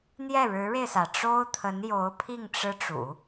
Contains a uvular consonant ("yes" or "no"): no